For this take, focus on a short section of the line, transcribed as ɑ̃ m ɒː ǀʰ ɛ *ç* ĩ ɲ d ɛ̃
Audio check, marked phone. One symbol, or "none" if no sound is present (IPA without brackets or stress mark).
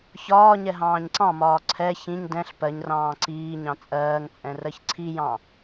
ç